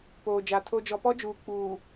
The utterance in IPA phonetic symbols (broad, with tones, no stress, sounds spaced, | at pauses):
p oː˨ d͡ʒ a˨ tʰ o˦ d͡ʒ ɔ˨ p ɔ˦ d͡ʒ uː˨ k͡p uː˨